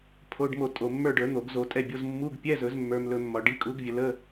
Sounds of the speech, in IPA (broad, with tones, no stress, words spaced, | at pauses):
pʰo˧˥˧ɖmo˦˨tʼo˨ mːə˞˦˨ɖə˞˨˩˦ n̪o˨˩˦ɡzo˨˦tʼɛ˦˨bʲo˧˥˧z mːu˧˥˧ɡ pʲɛ˧˥˧zɵ˨˩˦zmːə˞˨m lɵ˦˨mːɒ˨ ɖi˨˦kʼu˨˦ɡvʲə˨lə˧˥˧